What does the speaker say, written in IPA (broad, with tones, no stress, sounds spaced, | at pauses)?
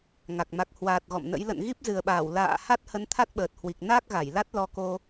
ŋ a˨˩ k̚ m a˨˩ k̚ h w aː˨˩ t̚ ɣ ɔ̰˧˨ m n ə̰˧˥ j l ə̰˧˨ n ɣ i˦˥ p̚ z ɨ˨˩ ə̯ ɓ aː˧˩ w l a̰ː˧˨ h a˦˥ t̚ h ə˨˦ n t̪ʰ a˦˥ t̚ ɓ əː˨˩ t̚ h w i˨˩ k̚ n a˦˥ k̚ ɣ a˧˩ j l a˦˥ t̚ l ɔ˧ k o˧